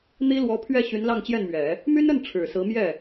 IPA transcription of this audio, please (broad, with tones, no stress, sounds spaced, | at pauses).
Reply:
n̪ i˥ l w ɔ˧˥ pʰ ɥ ɛ˥˩ ɕ y˧˥ n l ɑ˥˧ ŋ t͡ɕ j ɛ˥˩ n m ɥ ɛ˨˩˦ | m y˥ n ə˥˩ n ʈ͡ʂʰ ɻ̩˨˩ s ɹ̩˧˥ m j ɛ˥˩